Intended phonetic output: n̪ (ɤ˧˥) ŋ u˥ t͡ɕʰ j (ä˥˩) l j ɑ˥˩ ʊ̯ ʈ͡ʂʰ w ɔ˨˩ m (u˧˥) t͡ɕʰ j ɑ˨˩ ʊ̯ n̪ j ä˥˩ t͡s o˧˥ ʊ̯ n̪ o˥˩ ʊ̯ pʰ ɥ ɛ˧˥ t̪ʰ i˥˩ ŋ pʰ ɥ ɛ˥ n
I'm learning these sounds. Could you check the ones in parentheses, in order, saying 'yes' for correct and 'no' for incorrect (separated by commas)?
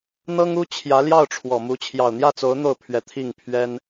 no, no, yes